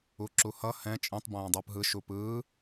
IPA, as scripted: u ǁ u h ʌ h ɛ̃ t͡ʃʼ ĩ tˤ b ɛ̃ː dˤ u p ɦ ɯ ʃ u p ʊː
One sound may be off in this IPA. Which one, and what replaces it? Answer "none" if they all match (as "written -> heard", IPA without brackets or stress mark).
ʊː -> ɯː